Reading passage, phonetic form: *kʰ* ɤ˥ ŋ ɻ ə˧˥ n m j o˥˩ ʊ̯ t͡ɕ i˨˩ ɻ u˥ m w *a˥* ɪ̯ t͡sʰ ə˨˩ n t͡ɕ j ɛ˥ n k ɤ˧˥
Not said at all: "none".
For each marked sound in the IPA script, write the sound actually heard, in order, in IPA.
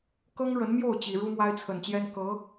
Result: k, a˥

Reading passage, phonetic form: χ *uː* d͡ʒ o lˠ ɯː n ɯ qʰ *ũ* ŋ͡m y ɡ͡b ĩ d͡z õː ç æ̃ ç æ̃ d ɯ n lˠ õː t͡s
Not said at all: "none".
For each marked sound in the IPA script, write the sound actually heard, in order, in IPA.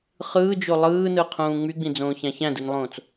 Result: ɯː, ũː

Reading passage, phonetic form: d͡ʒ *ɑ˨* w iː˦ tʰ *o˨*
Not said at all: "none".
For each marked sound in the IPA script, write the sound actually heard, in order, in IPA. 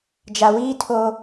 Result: a˨, o˦

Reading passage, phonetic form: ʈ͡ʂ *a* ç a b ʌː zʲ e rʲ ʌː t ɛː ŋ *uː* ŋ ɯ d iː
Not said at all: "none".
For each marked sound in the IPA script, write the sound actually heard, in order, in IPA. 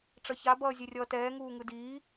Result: ʌ, uː

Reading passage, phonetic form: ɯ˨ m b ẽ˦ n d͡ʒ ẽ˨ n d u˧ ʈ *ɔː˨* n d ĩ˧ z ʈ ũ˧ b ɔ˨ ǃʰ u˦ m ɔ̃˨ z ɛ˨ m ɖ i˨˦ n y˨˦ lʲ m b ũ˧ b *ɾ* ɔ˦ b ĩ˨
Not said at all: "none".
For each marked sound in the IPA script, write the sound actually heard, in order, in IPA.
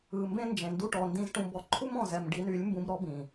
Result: ɔ˨, ɾ

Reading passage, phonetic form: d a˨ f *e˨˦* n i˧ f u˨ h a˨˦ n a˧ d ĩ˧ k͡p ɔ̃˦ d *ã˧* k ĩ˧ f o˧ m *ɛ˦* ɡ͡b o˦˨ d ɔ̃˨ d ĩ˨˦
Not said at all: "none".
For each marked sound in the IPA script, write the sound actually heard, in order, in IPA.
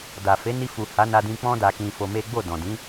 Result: e˨˦, a˧, e˦

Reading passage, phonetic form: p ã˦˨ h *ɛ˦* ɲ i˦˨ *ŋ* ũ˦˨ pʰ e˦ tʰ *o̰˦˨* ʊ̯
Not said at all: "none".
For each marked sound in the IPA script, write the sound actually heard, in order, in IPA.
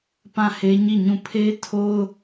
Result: e˦, ɲ, o˦

